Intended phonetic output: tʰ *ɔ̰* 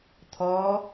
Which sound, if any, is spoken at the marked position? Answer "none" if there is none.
ɔ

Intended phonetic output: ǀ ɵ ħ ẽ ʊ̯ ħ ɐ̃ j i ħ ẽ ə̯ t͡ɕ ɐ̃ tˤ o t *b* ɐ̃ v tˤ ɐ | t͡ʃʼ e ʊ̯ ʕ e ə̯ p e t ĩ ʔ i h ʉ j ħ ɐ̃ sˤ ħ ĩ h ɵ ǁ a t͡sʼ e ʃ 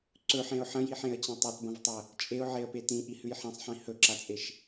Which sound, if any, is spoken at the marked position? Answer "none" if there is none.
b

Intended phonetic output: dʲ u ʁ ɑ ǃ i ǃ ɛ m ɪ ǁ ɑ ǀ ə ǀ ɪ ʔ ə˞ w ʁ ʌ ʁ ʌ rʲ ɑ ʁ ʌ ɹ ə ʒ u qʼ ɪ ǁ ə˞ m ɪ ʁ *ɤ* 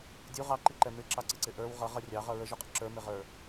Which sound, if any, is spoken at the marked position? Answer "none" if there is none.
ə˞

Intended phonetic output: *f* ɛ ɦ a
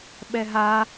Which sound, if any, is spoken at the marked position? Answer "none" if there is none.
ɓ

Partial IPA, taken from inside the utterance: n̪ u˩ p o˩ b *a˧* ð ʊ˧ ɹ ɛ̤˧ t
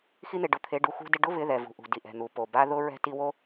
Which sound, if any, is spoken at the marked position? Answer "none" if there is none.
a˧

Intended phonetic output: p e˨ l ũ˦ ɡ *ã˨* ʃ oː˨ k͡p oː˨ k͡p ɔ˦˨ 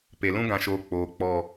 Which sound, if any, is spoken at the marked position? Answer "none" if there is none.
ã˨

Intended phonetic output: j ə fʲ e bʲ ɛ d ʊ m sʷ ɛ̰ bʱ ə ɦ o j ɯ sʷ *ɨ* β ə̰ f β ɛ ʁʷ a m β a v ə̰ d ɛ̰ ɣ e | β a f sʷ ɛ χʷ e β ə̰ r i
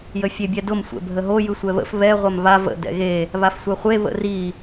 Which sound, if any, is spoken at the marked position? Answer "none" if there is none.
ɛ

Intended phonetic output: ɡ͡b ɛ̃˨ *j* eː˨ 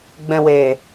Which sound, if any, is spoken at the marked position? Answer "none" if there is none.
w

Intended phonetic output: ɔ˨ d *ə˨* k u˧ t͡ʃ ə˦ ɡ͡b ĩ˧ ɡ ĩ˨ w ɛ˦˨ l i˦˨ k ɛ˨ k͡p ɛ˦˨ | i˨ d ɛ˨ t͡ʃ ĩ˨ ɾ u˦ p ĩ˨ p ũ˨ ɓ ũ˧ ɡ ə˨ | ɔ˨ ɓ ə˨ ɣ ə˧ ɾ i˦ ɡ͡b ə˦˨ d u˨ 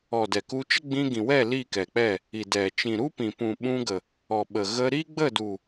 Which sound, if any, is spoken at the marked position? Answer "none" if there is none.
ɛ˨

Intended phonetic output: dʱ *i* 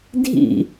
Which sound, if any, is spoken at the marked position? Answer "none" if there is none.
ḭ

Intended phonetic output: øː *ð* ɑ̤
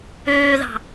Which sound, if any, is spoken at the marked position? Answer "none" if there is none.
ð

